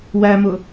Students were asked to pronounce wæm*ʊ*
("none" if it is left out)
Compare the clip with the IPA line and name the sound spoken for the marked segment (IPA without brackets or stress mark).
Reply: ʊ